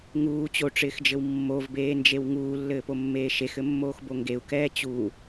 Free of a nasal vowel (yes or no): yes